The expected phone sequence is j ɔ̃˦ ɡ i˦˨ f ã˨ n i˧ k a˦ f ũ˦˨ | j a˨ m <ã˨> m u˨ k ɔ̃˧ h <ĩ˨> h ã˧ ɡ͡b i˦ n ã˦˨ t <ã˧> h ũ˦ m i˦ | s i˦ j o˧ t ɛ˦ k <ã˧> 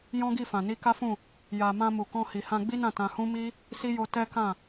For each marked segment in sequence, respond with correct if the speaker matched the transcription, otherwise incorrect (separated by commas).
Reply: incorrect, incorrect, correct, incorrect